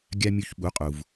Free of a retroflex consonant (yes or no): yes